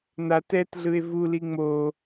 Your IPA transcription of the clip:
n̪ a t ɛ t ɮ ɯ e̯ v u l i ŋ͡m o

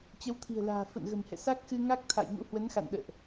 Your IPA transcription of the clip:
t͡ɕ ə˨˦ w t̪ʰ i̤˨˩ ə̯ l a̤ː˨˩ f ə̰˧˨ n ɣ ə̤˨˩ m h ɛ̰˧˨ s a˦˥ k̚ x ɨ˧ ŋ a˦˥ k̚ t̪ʰ a̰˧˨ j ŋ ṵ˧˥ h w ə˨˦ n x a̰˧˨ n ɗ ə̰ː˧˨ ʔ

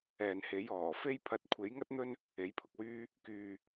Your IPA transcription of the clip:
ɛː˨ n h e˨˥ j ɔː˨˩ f e˥ j pʰ ɐ˧ t̚ kʷʰ e˨˥ j ŋ ɐ˥ t̚ n̪ ɵ˥ n | e˨˥ j pʰ ʊ˨ k̚ w yː˥ | k yː˧

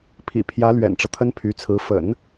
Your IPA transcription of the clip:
pʰ ḭ˨˩ pʰ j ä˧˥ l ɥ ɛ̰˨˩ n ʈ͡ʂ ɤ˦ t̪ʰ ə˥ n pʰ y˧˥ t͡sʰ ɹ̩˧˥ f ə̰˨˩˦ n

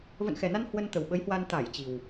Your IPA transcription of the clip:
v ə̰˧˨ n x ɛ˨˩ n a˧ n h w ə˧ n t̪ ə˨˩ w ɓ ə˨˦ j h w a˧ n t̪ a˧˩ j t͡ɕ i˨˩ w

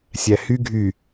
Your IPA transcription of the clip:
sʲ æ h y ɡʱ y

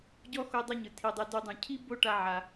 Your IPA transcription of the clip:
ɟ ɔ˥ x o˦ dˤ ɛ˦ ɲ ɯ˩ tʰ i˨ dˤ e˨ d u˨ dˤ ũ˩ cʰ i˥ b o˦ ʈ a˦ ʕ a˩

